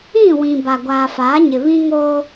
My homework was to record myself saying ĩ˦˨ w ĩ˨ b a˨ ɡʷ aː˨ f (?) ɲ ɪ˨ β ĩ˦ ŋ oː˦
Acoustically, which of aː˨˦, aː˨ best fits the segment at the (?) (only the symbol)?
aː˨˦